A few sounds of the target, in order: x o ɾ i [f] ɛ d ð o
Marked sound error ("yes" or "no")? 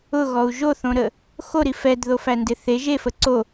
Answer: no